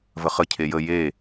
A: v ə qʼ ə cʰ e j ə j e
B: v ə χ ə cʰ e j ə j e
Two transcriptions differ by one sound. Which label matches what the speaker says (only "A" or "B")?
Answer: B